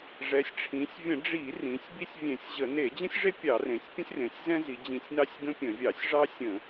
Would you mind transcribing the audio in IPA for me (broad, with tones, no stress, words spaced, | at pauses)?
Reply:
ʐɛ˩˧sʲʈ͡ʂʰĩ˩˧sʲ vʲə̃˧˩˧ɖ͡ʐi˧˩˧rĩ˩˧sʲ bi˦sʲvʲẽ˧˩˧sʲʑə˧˩˧ ne˧˩˧d͡ʑə̃˦sʲʐe˦ pʲɑ˧˩˧rẽ˩˧sʲ pʲə̃˦sʲrẽ˩˧sʲzɛ̃˦ zi˩˧d͡ʑĩ˧˩˧sʲnɑ˦sʲ ɡə̃˦pʲə̃˧˩˧vʲɑ˧˩˧sʲ ʐɑ˦sʲə̃˧˩˧